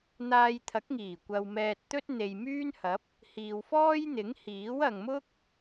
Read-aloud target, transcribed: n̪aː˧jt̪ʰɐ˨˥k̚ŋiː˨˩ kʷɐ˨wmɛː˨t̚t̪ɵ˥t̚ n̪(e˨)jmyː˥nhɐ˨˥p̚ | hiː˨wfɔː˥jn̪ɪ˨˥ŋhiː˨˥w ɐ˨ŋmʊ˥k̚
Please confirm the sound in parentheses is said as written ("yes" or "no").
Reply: yes